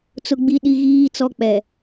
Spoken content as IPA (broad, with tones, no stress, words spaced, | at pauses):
t͡sʊ˦ɡ͡bi˦ɗi˦ɣiː˦ t͡sɔ˦k͡pɛ˨